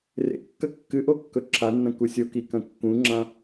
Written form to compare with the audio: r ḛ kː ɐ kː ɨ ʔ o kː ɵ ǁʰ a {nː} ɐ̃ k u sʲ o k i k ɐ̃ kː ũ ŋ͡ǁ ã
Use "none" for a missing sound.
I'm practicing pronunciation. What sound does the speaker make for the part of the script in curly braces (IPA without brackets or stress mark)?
nː